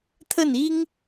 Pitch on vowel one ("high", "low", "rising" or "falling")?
falling